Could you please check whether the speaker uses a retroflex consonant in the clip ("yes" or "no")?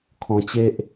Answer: no